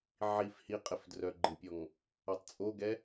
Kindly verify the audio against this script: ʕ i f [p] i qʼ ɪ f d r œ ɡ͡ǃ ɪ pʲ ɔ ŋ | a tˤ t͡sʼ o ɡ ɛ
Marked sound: incorrect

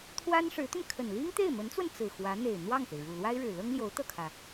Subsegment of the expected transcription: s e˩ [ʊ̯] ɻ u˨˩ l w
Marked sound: incorrect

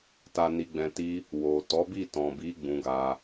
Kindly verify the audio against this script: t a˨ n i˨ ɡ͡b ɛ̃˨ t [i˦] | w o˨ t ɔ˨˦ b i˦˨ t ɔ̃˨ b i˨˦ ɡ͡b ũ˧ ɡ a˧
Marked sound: incorrect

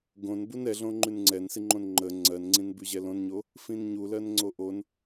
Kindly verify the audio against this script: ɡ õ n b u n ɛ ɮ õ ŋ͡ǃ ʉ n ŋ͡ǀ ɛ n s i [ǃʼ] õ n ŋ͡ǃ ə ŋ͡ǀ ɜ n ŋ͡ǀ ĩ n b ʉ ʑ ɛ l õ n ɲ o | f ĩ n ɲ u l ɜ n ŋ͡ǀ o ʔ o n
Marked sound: incorrect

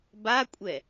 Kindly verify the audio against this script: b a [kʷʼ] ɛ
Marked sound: correct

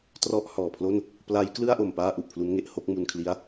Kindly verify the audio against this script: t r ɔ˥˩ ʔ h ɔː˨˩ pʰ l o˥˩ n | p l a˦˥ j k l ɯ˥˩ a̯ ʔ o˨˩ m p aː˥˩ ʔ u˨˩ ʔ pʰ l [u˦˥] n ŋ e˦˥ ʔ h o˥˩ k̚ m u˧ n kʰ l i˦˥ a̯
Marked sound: correct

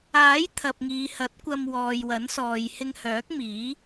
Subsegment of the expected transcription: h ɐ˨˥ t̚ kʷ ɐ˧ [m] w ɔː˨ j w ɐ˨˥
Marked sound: correct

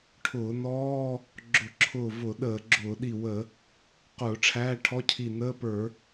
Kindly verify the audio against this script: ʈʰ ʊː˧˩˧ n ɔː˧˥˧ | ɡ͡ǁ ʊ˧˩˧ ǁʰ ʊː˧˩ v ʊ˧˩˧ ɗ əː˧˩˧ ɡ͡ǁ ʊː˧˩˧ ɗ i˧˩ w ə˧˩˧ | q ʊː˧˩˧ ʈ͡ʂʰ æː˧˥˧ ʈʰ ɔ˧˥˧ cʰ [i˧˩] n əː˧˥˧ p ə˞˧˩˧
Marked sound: correct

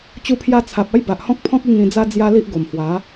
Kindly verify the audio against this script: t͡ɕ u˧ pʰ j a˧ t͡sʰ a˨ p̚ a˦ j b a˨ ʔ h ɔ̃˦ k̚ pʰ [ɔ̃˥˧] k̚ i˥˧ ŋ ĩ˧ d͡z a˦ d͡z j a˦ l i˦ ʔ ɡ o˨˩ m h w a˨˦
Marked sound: incorrect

